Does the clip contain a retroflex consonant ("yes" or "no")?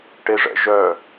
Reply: yes